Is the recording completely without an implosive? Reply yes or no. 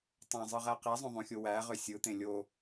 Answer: yes